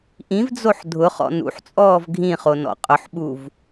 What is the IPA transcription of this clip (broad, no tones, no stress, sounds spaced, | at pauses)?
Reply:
ʔ ĩ v d͡z o ħ dʱ ʊ χ ɔ̰ n ṵ ħ t͡sʼ ɔː v ɡʱ ĩ χ o n ɔ̰ qʼ ʊ ħ ɓ u v